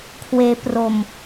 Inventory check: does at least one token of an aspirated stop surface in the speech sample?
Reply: yes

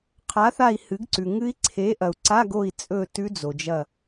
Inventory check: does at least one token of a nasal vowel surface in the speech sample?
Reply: no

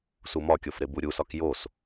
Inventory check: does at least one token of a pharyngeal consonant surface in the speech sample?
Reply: no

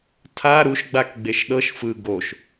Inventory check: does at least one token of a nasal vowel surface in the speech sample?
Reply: no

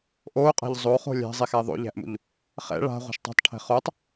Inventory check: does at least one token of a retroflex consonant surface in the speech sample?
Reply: yes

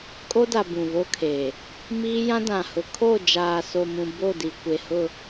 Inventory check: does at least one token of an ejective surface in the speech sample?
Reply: yes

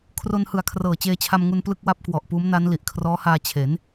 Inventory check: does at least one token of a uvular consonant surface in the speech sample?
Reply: no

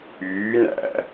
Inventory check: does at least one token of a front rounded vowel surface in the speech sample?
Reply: yes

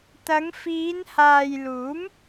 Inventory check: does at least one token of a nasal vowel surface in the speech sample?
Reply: no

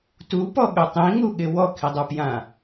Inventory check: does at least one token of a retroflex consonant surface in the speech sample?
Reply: no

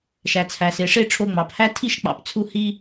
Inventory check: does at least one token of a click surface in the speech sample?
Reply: no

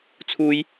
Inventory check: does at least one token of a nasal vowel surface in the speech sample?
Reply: no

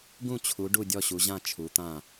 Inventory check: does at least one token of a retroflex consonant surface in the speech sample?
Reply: yes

